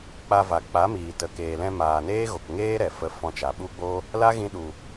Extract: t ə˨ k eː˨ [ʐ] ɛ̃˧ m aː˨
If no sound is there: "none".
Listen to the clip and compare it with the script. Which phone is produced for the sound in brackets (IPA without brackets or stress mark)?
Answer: l